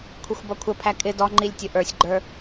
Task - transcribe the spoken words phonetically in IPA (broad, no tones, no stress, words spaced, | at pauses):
kʷʰɪxʷbʌkʷʰəpʰæ kʼɪ dɔŋ͡ǃilʲ tʲʊʔə˞sʲɡ͡ǃə˞